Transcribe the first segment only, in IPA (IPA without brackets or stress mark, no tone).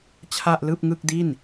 t͡ɕʰ